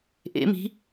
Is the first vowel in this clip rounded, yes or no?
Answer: no